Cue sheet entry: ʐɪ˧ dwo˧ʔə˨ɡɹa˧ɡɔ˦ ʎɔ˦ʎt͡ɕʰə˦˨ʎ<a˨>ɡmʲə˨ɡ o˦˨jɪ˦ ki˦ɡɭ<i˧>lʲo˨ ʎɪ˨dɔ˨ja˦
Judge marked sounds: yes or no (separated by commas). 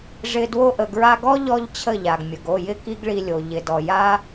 yes, yes